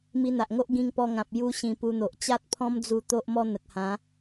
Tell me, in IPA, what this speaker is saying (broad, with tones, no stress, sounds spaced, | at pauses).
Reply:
m i˧ n̪ a˨ ʔ ŋ o˦ ʔ ɡ ĩ˧ ŋ p ɔ˧ ŋ ã˨ p̚ j u˧ ɕ ĩ˧ p u˧ n̪ o˨ ʔ t͡ɕ a˦ t̚ pʰ ɔ̃˦ m d͡z u˧ t̪ o˦ ʔ m ɔ˦ n̪ ə˨ k̚ h ã˨˦